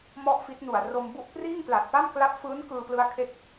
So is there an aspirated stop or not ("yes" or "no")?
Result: yes